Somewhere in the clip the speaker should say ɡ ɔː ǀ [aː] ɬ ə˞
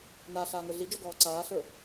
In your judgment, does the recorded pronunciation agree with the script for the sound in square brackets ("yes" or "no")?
yes